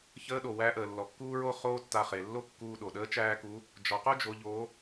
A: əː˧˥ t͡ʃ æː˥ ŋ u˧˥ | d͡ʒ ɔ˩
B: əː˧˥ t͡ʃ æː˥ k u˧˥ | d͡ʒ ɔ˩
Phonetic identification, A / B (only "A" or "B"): B